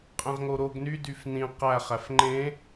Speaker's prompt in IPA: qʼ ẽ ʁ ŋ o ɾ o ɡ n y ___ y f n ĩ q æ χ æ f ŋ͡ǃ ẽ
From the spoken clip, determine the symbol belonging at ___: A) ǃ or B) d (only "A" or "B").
B